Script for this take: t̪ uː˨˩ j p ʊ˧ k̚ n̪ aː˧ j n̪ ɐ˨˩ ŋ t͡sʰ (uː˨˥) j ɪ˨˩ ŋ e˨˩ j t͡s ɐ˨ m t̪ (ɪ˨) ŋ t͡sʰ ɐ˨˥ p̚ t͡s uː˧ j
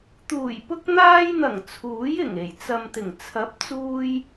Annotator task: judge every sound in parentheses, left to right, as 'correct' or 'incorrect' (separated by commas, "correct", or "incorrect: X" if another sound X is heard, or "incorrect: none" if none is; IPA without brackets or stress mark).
correct, incorrect: ɪ˨˩